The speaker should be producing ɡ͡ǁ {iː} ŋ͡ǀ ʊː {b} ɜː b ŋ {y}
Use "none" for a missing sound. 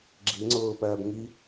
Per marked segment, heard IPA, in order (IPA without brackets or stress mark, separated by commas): i, p, i